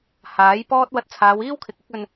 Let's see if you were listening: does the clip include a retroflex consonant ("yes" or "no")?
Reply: no